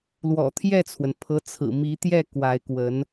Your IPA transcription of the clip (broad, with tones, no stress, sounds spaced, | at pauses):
l w ɔ̰˨˩ t̪ʰ j ɛ˥˩ t͡sʰ w ə˩ n pʰ ɤ˧˥ t͡sʰ ɹ̩˨˩ m i˧˥ t̪ j ɛ˥˩ k w a˧˥ ɪ̯ k w ə˧˥ n